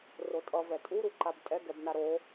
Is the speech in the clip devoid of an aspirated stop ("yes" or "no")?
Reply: yes